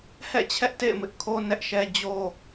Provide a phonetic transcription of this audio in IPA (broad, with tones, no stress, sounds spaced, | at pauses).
h ɛ̰˦˨ t͡ɕʰ ɛ˦ ʔ t ḛ˦˨ ɪ̯ m ɪ˦ ʔ kʰ o˦ n ɛ˦ ʔ ʃ ɛ˦ d͡ʑ o˦